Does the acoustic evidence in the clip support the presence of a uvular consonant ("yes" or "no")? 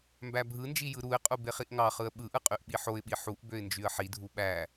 yes